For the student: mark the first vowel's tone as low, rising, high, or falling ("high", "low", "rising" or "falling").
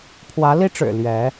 rising